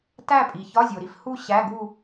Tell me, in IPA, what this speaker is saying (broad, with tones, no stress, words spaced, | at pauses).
tæ˥˧pʼi˩ çɒ˧˥˧zʲo˩ɾi˥˧fhu˥˧ ɕæ˧˥˧ɡu˥˧